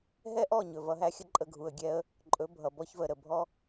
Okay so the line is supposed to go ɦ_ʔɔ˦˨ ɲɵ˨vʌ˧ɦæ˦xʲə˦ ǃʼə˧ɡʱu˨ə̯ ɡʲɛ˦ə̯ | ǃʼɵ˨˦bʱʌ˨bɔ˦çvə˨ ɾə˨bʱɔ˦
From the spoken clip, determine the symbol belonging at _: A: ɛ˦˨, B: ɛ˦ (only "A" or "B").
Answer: B